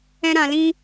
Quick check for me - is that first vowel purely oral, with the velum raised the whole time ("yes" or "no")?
no